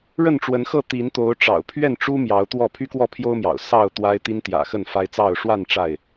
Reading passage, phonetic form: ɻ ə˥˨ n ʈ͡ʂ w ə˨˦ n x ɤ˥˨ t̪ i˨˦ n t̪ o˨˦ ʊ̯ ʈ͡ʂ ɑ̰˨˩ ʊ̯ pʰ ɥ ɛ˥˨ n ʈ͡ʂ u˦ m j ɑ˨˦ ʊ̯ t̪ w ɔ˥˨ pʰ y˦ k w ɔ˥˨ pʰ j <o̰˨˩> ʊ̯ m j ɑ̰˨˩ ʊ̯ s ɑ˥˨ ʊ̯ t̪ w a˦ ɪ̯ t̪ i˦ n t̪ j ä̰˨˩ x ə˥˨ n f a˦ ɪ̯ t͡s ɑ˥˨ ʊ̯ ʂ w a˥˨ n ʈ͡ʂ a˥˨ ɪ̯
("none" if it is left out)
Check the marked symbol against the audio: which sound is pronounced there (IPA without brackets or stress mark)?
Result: o˦